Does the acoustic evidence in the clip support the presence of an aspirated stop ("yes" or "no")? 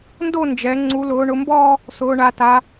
no